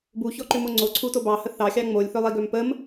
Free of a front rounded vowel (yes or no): no